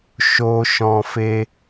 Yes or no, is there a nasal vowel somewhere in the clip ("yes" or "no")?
yes